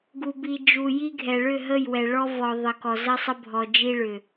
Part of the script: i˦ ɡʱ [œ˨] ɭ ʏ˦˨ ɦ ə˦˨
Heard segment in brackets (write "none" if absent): ɛ˨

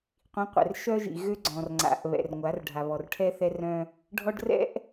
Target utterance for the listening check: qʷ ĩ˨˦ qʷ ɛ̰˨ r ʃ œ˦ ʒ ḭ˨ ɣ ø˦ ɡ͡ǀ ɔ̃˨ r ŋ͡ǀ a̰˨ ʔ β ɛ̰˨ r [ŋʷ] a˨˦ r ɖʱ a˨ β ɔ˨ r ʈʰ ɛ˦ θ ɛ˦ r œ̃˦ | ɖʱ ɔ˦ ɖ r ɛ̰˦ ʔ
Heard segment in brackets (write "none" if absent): ŋʷ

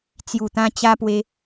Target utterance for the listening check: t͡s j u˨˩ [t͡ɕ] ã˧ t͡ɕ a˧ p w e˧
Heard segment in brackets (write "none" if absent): t̪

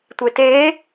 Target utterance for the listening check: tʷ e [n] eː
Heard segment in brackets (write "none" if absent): t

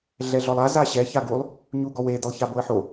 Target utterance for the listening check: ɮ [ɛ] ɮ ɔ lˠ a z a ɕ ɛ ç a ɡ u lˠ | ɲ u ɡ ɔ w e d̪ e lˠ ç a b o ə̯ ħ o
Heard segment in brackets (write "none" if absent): ɛ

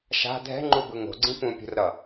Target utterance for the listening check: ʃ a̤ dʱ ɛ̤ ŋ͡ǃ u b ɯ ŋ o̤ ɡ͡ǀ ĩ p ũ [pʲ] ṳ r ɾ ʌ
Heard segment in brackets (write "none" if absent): pʲ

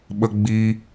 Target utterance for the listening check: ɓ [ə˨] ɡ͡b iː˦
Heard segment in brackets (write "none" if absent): ə˦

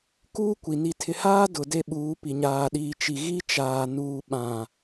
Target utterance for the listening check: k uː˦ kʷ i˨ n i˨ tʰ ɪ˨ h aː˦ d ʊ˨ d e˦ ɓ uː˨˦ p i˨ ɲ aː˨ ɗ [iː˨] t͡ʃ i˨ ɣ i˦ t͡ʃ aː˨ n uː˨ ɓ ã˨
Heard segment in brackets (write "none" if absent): iː˨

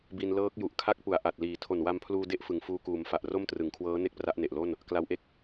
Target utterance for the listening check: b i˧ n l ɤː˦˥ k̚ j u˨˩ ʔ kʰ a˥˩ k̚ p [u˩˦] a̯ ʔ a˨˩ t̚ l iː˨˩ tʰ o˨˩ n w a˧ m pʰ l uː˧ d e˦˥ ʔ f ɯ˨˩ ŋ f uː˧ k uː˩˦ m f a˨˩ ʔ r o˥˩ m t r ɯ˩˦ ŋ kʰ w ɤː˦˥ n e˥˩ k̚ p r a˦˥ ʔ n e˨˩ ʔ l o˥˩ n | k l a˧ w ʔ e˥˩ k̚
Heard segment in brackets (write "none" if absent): u˨˩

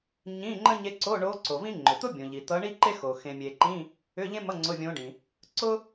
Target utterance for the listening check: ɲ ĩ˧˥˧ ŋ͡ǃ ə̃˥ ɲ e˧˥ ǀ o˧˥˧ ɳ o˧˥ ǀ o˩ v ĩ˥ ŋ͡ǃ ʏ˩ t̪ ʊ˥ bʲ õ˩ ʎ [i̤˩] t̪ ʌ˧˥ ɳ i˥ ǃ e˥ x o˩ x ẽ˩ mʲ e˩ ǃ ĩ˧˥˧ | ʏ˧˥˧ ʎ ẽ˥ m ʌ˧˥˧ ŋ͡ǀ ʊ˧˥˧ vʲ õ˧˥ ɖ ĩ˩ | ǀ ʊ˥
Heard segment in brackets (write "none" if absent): i˩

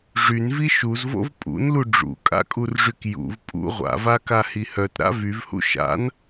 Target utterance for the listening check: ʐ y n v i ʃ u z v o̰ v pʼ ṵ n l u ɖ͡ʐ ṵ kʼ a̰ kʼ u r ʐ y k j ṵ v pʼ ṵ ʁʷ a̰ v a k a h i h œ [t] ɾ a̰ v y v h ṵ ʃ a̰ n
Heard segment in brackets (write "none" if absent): t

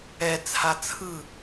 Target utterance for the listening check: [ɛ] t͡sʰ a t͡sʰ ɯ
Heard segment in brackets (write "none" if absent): ɛ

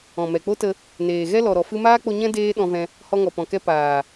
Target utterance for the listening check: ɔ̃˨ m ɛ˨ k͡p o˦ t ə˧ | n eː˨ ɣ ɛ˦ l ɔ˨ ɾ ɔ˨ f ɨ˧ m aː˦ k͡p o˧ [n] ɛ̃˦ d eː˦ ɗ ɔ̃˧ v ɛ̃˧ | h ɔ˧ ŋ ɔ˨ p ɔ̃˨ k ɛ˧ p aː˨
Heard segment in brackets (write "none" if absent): ɲ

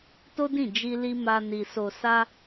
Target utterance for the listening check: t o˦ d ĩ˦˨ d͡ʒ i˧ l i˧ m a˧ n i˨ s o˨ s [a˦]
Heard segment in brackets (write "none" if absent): a˧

